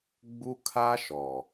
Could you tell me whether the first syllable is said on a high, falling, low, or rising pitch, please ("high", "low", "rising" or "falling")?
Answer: high